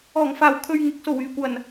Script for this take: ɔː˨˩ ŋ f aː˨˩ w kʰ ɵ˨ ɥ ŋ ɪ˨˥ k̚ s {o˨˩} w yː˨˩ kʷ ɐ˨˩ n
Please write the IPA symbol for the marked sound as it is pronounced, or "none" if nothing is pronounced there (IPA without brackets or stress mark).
o˨˩